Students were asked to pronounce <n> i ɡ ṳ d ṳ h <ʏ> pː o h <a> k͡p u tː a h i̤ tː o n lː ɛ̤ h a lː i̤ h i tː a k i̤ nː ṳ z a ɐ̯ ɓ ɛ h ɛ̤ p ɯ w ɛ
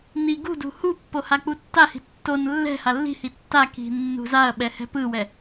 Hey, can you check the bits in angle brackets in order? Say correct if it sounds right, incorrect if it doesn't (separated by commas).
correct, incorrect, correct